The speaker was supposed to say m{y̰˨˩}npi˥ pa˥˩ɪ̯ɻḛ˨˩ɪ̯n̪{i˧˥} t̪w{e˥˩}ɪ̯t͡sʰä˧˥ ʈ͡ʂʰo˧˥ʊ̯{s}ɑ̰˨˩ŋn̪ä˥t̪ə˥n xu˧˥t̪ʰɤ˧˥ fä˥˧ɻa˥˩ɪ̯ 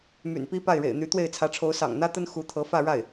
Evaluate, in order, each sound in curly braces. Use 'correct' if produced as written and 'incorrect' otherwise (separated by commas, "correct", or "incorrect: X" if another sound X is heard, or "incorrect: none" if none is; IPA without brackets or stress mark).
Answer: correct, incorrect: y˧˥, correct, correct